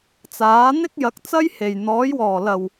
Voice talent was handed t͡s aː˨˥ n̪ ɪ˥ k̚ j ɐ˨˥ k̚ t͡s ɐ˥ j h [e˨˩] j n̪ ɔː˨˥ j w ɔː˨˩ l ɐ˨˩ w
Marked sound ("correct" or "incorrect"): correct